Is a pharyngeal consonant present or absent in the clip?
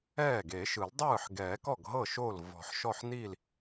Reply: present